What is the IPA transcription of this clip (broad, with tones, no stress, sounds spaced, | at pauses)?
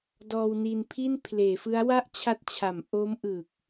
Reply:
d ɔː˧ w n i˧ n pʰ i˥˩ n pʰ l eː˩˦ f ɯ˦˥ a̯ w a˥˩ ʔ t͡ɕʰ a˦˥ t̚ t͡ɕʰ a˩˦ m ʔ o˦˥ m ʔ ɯ˨˩ k̚